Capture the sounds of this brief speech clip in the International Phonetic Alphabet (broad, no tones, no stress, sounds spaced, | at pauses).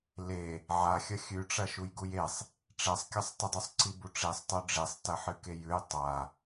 l e | ʕ a xʲ ɐ xʲ ʉ ʈ͡ʂ ɐ ʃ u j ɡ u j e sˤ | ʈ͡ʂ e sˤ kʲ ɐ sˤ t ɨ dˤ ʉ sˤ ǀ i b u ʈ͡ʂ i sˤ tˤ o ɖ͡ʐ i sˤ t ɐ ħ ɨ k e j ʉ j tˤ a